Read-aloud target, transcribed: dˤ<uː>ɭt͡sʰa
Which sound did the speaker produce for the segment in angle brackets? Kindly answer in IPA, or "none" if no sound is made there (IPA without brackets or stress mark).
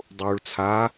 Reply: uː